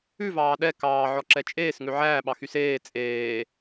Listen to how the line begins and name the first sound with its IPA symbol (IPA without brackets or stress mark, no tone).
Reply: ʉ